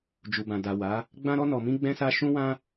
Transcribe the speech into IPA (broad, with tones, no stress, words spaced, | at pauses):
d͡ʒu˨bã˨ da˨wa˨˦ | ɡ͡bã˧ɾɔ˧nɔ˨mĩ˧ ɡ͡bɛ̃˧sa˧ ʃũ˧wã˧